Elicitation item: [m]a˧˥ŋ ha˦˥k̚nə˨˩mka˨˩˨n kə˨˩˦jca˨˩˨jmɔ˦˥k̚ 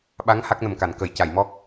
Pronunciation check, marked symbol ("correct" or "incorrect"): incorrect